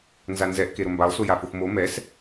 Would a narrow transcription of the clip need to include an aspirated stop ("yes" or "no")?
no